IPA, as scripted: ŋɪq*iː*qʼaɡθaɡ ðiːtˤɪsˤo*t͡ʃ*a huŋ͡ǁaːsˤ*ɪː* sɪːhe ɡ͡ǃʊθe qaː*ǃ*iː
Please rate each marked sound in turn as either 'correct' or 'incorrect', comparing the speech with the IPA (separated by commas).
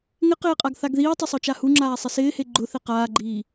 incorrect, correct, incorrect, incorrect